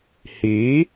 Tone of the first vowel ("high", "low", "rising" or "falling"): rising